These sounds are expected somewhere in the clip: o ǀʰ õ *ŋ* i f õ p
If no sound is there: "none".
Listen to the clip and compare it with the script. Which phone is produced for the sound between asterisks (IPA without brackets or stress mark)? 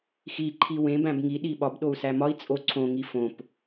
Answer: ŋ